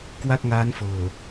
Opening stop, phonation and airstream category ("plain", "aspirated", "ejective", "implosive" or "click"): plain